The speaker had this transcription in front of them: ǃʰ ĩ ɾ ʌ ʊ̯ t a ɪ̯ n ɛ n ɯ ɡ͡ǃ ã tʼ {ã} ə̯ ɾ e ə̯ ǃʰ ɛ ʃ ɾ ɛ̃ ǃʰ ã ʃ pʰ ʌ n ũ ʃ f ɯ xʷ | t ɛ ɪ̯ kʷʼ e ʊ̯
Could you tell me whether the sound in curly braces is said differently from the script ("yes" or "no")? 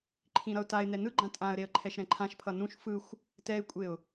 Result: no